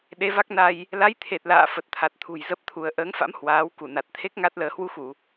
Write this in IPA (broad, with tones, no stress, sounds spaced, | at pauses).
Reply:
ɗ e˨˦ v a˦˥ k̚ n a˧ j | l a˨˦ j t̪ʰ e˨˩ t̚ l a̰ː˧˨ f ə˨˩ t̚ t̪ʰ a˨˩ t̚ t̪ʰ ṳ˨˩ j z ə˦˥ p̚ t̪ʰ u˧ ə̯ ʔ əː˨˦ ŋ f a̰˧˥ m h w aː˨˦ w k u˧˩ n a˨˩ t̚ t̪ʰ e˦˥ k̚ ŋ a˦˥ t̚ l əː˨˦ h w u˨˦ x u˧˩˨